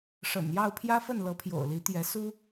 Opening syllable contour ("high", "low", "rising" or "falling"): low